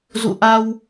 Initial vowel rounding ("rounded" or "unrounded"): rounded